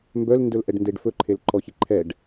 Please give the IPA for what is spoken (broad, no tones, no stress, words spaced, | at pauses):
mbœlndɵlʔɛɖndeɖ fɵǃʰelǃɔçi ǃʰɛɖ